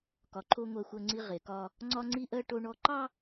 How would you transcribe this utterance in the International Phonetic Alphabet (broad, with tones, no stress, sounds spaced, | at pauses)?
k ɒ˨ ǃʰ o˦ ŋʷ ɜ˦ xʷ ɜ˦ ŋ͡ǀ i˦ ʁ e˨ k ɒ˦ | ŋ͡ǀ ɒ˦ ŋ͡ǀ i˦ ʔ ɜ˦ ʈ o˦ ɳ ɔ˦ ǃ ɑ˦